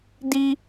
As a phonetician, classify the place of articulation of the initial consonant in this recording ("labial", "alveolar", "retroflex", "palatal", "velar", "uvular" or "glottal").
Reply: alveolar